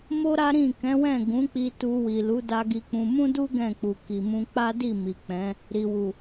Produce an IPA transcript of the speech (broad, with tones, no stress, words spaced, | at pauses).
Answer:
mo˦ɾa˦ɾĩ˦˨ kɛ̃˨˦wɛ̃˦˨ ɡũ˨˦k͡pi˧ tu˧wi˨lu˨˦ da˧ɡi˧k͡pũ˧ mũ˦du˦ ɡɛ̃˦˨k͡pu˨ki˨mũ˧ k͡pa˦di˦˨ mi˨k͡pɛ̃˨˦ | ɾi˨wu˨